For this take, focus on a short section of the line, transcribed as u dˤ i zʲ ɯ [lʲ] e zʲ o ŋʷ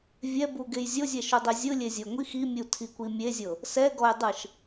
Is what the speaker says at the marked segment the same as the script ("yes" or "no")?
yes